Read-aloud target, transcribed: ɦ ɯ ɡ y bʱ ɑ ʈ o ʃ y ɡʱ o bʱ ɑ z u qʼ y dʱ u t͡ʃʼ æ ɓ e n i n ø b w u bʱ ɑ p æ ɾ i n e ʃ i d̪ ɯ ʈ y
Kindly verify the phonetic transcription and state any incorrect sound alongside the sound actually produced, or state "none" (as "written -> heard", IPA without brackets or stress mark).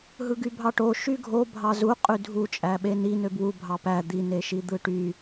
ɾ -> d̪